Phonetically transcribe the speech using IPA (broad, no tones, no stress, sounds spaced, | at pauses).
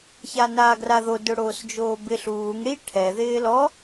ç a n aː ɡ r a ð o d ʊ ɽ oː s d͡ʒ oː b ɪ ɬ uː ŋ ɽ i ʈʰ ɛ ð ɪː l ɔ